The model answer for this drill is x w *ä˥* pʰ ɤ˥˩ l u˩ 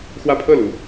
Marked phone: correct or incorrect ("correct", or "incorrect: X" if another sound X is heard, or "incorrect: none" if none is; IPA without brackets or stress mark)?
incorrect: ä˥˧